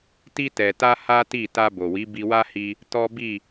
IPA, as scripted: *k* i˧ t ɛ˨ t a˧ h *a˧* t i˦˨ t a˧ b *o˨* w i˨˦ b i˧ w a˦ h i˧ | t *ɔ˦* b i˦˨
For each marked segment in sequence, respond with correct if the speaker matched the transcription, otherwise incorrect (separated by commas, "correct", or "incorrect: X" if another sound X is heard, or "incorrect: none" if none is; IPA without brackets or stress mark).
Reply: incorrect: t, incorrect: a˦, correct, correct